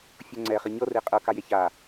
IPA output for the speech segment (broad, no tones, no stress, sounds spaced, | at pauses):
fʲ o ŋ͡ǀ ɛ χ i ɲ ɤ r e qʼ ɤ k a j e ç a